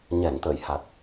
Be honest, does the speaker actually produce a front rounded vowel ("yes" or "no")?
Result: no